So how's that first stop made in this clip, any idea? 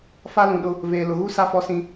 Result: implosive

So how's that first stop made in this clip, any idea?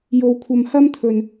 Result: aspirated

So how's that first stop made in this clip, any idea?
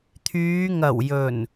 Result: aspirated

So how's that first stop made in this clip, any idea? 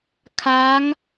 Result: aspirated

